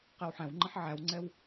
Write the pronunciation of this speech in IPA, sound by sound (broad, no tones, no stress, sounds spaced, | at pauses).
q ɛ w ħ æ̃ w ŋ͡ǃ ə̃ ħ ʕ æ w ŋ͡ǀ ɛ w